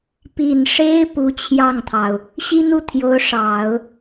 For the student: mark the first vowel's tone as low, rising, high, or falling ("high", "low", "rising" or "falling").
low